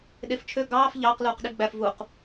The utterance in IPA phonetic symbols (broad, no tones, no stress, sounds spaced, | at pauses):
ɗ e f t͡ʃʰ ø ɡ ɑː f ʎ ɑː q l uː q ɗ i ɡ͡b æ f v u q